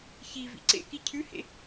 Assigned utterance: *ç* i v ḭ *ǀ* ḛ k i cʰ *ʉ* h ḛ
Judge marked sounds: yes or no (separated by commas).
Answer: yes, yes, yes